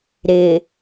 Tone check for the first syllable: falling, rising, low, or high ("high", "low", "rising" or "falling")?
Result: low